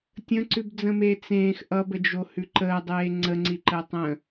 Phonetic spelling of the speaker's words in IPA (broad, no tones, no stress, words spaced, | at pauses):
tʲə̃ǀʉbd͡zə̃meː t͡sẽːx ʔʌbəd͡ʒohʉ ǃəːdˤeː ŋ͡ǀəŋ͡ǀiǃəː tˤə̃